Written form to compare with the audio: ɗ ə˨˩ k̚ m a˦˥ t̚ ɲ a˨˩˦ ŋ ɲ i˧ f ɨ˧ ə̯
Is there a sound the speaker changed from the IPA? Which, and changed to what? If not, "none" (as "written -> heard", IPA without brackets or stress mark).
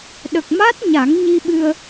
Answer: f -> ɓ